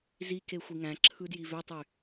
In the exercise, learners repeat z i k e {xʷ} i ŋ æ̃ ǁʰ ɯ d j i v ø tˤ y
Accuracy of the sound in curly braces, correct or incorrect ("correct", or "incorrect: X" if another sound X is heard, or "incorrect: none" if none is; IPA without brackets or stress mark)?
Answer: correct